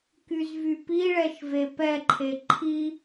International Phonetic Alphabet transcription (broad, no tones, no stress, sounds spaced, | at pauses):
k y z v y p i ɭ ɛ ʃ v e p ɛ ǃʰ e ǃʰ i